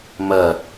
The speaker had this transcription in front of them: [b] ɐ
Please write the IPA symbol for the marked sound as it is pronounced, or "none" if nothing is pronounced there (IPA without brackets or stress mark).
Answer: m